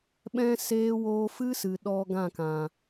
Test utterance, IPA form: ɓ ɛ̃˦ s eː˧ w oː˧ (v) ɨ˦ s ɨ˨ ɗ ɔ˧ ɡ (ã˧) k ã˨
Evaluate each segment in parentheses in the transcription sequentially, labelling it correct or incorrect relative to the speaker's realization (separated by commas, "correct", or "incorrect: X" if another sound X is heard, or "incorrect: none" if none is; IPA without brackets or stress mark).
incorrect: f, incorrect: ã˦˨